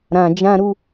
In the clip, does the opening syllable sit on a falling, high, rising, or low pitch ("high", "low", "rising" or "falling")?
low